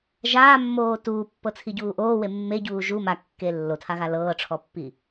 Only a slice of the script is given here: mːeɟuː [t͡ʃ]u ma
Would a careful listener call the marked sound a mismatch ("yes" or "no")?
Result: yes